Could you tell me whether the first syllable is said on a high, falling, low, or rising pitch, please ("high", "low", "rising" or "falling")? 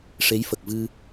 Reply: rising